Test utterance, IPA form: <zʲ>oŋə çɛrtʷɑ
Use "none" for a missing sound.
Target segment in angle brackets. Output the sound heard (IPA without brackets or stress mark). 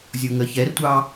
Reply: zʲ